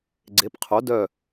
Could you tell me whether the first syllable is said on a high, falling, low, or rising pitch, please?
rising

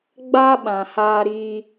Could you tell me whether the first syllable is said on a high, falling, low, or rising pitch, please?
high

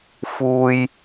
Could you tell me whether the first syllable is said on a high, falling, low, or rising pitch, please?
low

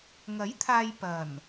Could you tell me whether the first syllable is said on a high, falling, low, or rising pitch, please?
rising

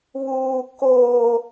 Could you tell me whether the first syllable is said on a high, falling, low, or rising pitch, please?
high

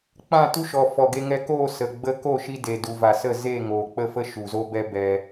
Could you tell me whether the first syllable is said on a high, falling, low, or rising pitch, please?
falling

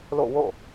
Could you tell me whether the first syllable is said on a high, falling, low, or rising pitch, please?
falling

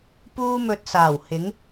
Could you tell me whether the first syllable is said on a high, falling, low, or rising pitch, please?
high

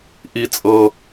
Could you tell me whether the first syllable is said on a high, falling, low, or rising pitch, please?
low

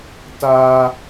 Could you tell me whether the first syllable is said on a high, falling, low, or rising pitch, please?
high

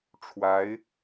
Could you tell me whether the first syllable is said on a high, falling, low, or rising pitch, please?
rising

